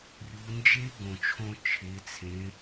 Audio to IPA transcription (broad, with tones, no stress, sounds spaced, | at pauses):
rʲ u˩˧ n d͡ʒ e˦˥ ɡ õ˩ t͡ʃʰ õ˧ t͡ʃʰ e˩˧ t͡sʰ ẽ˩˧